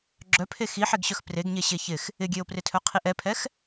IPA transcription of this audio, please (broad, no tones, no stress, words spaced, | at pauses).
ɡ͡ǁœpʰe xiħeɡɕœx preɡɲe ɕeçɪx | ɪɡʲeo̯prɪtʰœ qʰiʔɛpʰɛx